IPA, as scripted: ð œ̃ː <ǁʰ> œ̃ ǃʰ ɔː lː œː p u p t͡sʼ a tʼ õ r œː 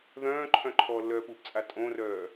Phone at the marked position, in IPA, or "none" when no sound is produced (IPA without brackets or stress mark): ǃʰ